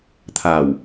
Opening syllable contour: low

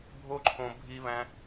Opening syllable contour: high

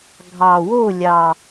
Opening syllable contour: low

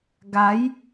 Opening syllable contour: rising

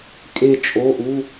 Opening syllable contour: falling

